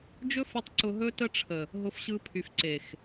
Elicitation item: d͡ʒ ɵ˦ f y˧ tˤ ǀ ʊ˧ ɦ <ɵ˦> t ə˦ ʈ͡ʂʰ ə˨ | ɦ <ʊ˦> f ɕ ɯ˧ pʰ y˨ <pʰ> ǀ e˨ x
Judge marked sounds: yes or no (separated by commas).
yes, no, no